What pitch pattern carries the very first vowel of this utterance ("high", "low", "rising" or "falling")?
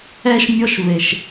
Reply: high